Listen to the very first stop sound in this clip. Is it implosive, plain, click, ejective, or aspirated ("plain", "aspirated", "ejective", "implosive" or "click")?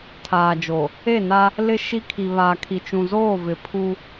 aspirated